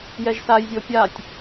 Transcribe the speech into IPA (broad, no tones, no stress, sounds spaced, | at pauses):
j ɛ ʒ s a j zʲ o pʲ a tʲ